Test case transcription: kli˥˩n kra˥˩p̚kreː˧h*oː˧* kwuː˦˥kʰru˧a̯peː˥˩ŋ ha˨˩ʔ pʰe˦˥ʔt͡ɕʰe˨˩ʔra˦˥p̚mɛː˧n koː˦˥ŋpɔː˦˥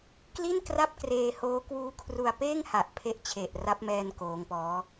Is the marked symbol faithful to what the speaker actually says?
no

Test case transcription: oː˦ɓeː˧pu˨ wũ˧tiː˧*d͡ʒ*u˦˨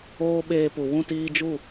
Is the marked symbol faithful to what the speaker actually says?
yes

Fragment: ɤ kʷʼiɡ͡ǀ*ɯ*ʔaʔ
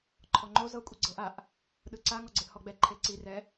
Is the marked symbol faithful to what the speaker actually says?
no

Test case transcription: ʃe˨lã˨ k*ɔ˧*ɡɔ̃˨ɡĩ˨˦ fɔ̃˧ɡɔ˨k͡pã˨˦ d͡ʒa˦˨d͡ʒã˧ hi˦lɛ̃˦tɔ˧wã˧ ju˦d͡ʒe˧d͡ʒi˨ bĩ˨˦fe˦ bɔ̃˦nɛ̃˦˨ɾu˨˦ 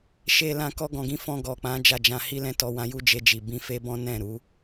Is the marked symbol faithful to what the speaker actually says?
yes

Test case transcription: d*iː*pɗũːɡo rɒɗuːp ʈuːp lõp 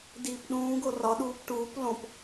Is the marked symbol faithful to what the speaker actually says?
yes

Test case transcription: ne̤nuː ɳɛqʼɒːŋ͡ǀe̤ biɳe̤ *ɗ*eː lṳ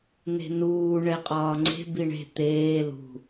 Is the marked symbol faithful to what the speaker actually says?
no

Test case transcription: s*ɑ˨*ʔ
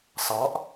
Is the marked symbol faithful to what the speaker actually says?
no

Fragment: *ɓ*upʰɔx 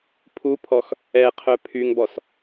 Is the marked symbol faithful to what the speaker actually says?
no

